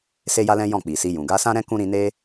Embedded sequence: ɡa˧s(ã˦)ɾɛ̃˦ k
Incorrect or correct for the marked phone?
correct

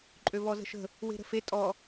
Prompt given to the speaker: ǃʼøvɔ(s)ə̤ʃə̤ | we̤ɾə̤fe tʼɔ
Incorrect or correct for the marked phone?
incorrect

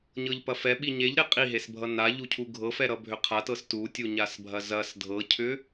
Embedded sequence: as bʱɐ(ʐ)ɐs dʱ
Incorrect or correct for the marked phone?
incorrect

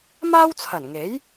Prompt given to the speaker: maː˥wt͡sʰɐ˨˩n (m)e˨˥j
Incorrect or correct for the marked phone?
incorrect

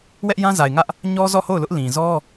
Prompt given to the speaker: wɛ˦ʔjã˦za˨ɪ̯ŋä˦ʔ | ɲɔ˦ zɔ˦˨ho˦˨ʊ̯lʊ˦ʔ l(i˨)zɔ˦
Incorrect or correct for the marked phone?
incorrect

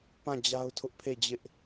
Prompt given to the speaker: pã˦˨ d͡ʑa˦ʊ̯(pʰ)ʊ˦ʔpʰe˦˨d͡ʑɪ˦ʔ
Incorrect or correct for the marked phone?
incorrect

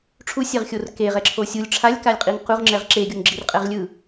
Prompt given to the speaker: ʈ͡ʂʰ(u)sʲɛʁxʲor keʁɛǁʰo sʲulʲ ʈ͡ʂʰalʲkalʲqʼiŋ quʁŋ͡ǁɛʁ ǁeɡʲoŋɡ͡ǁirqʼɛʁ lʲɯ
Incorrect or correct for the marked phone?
correct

